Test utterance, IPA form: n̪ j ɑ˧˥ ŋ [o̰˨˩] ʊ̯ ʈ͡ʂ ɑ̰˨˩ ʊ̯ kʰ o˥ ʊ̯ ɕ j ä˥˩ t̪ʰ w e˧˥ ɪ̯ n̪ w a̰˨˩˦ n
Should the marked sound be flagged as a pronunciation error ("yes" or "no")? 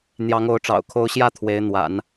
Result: yes